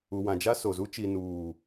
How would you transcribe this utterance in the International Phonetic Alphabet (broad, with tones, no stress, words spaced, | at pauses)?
u˨wã˨ d͡ʒa˦so˨zu˦ t͡ʃi˨nuː˨